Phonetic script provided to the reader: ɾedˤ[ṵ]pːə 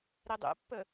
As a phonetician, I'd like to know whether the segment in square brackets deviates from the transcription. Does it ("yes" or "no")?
no